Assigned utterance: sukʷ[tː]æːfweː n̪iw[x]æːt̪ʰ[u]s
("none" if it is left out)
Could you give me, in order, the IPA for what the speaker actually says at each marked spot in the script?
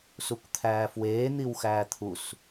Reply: t̪ʰ, x, u

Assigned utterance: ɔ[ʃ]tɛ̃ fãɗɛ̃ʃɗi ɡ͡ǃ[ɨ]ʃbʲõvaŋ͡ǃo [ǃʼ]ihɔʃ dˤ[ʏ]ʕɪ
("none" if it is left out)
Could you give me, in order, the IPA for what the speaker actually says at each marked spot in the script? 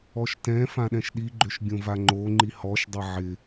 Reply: ʃ, ʏ, ŋ͡ǃ, ɪ

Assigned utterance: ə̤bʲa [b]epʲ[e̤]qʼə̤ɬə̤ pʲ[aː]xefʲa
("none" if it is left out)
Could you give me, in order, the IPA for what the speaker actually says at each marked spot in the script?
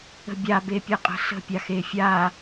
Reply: b, e, a

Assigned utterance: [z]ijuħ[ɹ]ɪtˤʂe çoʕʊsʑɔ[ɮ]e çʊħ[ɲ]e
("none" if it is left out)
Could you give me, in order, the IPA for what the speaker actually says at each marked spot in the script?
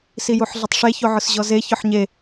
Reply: s, ɮ, z, ɲ

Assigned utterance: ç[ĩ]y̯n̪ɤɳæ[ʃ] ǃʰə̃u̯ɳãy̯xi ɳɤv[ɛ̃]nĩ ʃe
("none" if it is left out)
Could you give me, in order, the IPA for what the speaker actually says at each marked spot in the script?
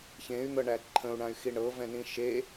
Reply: ẽ, none, ɛ̃

